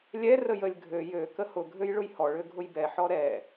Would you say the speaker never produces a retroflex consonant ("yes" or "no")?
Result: no